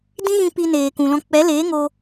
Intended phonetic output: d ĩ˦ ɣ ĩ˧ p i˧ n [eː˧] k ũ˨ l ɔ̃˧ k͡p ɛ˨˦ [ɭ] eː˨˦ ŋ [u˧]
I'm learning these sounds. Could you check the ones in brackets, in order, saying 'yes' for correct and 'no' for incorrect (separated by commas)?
no, no, no